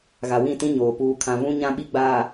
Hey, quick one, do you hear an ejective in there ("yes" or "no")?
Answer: no